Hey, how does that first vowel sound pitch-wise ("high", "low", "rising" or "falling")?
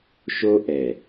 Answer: high